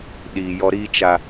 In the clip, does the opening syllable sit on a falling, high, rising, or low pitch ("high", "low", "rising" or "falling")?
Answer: low